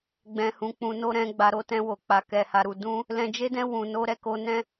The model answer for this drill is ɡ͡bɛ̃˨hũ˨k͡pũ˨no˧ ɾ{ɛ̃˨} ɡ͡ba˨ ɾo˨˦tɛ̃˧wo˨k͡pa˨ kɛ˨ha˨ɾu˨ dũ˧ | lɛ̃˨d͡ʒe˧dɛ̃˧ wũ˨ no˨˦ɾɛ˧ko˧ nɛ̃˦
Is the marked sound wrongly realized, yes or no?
yes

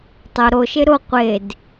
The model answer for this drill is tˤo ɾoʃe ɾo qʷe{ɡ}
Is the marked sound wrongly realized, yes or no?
yes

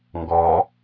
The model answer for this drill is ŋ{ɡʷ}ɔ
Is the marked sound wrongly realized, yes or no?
yes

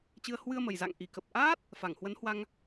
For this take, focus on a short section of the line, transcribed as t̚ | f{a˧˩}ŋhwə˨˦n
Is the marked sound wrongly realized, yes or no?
no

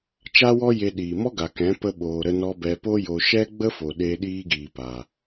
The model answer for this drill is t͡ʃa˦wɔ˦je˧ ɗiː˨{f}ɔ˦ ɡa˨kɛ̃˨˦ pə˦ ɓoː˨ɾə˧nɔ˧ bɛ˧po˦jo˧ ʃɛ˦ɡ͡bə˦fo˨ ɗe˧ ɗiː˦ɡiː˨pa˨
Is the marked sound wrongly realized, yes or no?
yes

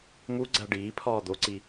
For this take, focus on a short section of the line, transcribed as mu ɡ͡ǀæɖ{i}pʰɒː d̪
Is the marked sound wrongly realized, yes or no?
yes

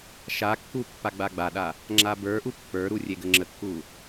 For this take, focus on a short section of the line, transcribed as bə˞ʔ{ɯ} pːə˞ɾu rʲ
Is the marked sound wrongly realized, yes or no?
yes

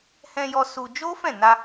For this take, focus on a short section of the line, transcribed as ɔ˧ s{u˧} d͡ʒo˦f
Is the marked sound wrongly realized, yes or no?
no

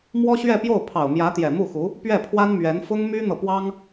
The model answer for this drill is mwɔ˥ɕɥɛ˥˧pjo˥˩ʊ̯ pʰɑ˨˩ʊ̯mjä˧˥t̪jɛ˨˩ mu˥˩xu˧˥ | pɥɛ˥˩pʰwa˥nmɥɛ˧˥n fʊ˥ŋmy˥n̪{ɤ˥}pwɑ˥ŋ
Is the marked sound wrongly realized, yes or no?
yes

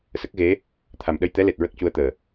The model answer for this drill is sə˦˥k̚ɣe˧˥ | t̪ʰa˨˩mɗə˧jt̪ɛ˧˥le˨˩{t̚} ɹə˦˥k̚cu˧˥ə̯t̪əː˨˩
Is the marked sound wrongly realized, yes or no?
no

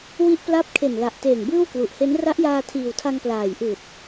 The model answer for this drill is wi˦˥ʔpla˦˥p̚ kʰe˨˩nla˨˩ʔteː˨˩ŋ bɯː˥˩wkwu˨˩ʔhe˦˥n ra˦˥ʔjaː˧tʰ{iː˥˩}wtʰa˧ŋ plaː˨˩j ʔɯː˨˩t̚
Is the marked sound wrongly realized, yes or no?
yes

